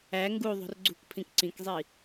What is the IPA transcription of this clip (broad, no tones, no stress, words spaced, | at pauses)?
æ ŋɡuðˤṳr ɡ͡ǀṳkpʰĩk ǀĩkzˤi